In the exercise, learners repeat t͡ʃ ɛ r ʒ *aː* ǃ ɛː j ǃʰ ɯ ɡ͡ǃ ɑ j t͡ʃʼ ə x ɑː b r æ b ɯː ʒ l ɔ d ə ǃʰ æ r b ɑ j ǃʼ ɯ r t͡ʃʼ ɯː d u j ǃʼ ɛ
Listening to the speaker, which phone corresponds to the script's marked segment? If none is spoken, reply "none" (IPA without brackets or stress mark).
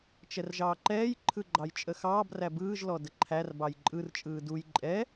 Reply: ɑː